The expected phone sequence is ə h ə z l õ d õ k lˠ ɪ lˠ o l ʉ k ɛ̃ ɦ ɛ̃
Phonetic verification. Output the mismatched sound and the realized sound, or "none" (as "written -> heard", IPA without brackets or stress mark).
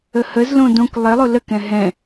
ʉ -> ə